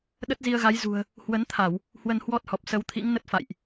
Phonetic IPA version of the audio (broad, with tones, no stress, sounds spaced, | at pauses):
ɗ ə˦˥ t̚ z i˧ ə̯ ɣ a˨˦ j z ṳ˨˩ ə̯ | h w ə˨˦ n t̪ʰ a˧˩˨ w | h w ə˧ n h w ɔ˦˥ t̚ h ɔ˨˩ p̚ s ə˨˦ w t̪ʰ ḭ˧˥ ŋ n ə˦˥ t̚ f a̰˧˨ j ʔ